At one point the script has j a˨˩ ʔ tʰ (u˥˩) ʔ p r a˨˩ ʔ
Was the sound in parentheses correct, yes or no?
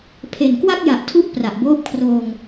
no